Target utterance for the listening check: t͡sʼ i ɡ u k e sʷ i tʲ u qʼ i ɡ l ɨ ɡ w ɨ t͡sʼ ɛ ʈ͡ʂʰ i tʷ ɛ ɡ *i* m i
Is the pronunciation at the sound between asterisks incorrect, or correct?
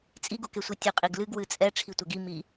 correct